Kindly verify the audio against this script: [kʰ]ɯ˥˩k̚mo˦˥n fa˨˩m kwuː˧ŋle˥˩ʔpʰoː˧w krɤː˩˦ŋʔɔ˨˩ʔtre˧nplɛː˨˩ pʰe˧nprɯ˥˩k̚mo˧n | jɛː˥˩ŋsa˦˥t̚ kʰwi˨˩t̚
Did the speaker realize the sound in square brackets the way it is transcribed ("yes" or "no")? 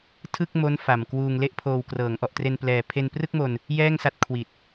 no